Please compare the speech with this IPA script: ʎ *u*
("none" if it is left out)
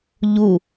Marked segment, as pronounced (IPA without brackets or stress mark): u